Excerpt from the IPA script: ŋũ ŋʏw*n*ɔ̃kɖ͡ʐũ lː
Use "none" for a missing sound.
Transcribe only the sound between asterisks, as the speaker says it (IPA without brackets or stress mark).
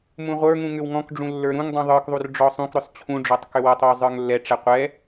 ŋ